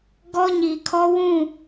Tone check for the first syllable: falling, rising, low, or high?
high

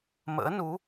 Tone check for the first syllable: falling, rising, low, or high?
rising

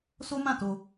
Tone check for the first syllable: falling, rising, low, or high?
high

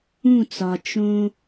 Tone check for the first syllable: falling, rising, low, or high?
falling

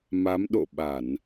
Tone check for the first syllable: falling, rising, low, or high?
rising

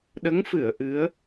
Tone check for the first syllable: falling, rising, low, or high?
rising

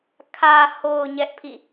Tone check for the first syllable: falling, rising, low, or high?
low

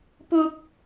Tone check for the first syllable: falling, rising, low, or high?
high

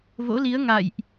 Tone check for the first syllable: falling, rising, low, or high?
rising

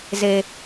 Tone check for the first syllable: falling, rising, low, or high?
low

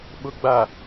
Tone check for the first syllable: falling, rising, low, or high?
low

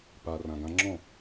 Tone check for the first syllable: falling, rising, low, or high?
low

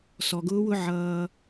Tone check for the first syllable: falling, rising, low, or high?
low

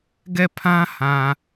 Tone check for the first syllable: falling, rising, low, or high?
falling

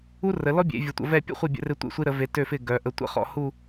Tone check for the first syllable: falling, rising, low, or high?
high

